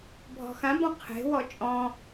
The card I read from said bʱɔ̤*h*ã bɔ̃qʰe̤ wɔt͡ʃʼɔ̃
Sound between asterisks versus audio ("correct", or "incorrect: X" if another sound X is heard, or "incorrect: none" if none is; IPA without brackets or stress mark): incorrect: x